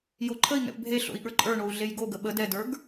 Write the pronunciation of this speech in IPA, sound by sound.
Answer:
j o ǃʰ ə i̯ ŋ ɛ̰ p bʱ e ɬ o̰ i̯ ɠ ə˞ ǃʼ ə˞ ɳ o u̯ ɮ e j ɡ o ɡ ə ɓ ə d ɛ d ə˞ ɡ

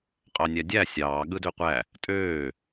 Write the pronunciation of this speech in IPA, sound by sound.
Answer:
qʼ ɑ nʲ æ dʲ æ sʲ ɑː ɠ ɯ d ø qʷ æ | tʼ øː

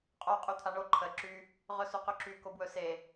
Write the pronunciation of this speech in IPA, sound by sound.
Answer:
qʼ o qʼ y t̪ʰ a ɳ o ǃʰ ə ǁ y | ʁ ɵ s u q ɵ ǁ y k o b w ɵ s e

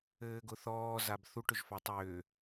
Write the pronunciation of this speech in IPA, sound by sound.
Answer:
ɘː ɡ ʊ θ ɔː z a b θ u ʈ ʏ ʒ f a tˤ ʏː

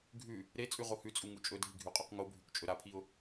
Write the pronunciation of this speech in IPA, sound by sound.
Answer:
ɡʱ ʉ | ɾ e t͡sʼ ʉ ʁ o h ʉ t͡sʼ u ŋ u t͡ʃʼ ɵ dʱ i ɡʱ ʉ qʼ ʉ q ŋ o bʱ ʉ k t͡ʃʼ ɵ ɾ a pʰ i ʊ̯

